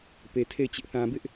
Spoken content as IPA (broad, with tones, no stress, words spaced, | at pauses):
pe˨tʰe˦˨ɪ̯ t͡ɕɪ˦ʔ θã˨bɪ˦ʔ